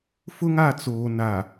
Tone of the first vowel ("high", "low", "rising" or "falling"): high